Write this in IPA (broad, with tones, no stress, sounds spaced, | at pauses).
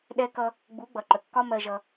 ɗ ɛ˧ k ʌ˧ | ɡ͡b u˨˦ ɡ͡b ʌ˨ ǃ ə˨ kː ɒ˦ m ɜ˧ ʒ ʌ˧